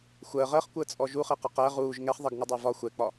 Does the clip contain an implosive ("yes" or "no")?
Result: no